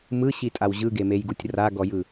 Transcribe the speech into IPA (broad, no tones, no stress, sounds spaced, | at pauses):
m ɯ ɕ i tʼ a w ʑ ɯ ɡ e m e j ɡ u tʲ r a ɡ ɔ j ɯ